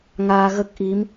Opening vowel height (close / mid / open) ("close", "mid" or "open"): open